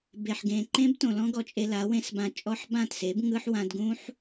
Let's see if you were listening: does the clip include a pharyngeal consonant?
yes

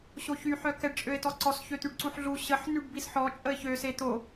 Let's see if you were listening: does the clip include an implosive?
no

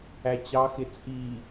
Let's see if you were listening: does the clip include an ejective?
yes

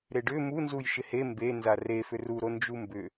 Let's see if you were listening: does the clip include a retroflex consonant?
yes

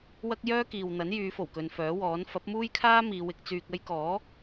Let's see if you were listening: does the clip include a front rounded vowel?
yes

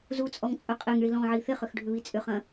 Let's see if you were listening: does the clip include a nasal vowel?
yes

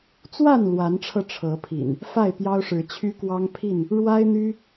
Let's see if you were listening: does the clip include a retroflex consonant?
yes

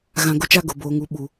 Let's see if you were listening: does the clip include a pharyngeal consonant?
no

